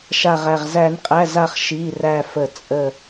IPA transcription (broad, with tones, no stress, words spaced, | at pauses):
ʃa˧˩ʁæ˧˩ʁ zæ˨˩˦nqʼæ˩˧˩za˧˩χ ʃi˩˧˩ræ˧˩fə˨˩˦ t͡sʼə˥˩